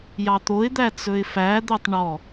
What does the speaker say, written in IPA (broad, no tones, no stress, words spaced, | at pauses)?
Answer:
jɑt̪oɪ̯d̪æ t͡sɵɪ̯fæd̪œtˤ ɳɔ